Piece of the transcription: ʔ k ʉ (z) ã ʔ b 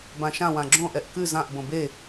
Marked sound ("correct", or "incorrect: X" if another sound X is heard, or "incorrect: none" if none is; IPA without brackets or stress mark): correct